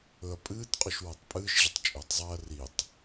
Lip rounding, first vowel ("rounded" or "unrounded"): rounded